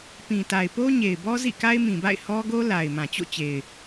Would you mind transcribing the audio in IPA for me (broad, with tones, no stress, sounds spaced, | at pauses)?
p ĩ˨ t a˨ ɪ̯ p o˦ ɲ e˨ ɪ̯ b ɔ˦ z ḭ˦˨ k a˦ ɪ̯ m ĩ˨ b a̰˦˨ ɪ̯ h ɔ˦ ɡ o˦ l a˨ ɪ̯ m ã˨ t͡ɕ o̰˦˨ t͡ɕ e˨ ɪ̯